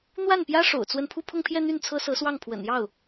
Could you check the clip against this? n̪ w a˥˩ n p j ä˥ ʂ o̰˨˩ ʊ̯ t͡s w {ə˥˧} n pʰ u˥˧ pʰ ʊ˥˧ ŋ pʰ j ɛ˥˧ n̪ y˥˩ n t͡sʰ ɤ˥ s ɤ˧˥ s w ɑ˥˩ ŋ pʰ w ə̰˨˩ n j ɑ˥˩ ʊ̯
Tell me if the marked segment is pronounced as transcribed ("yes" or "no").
yes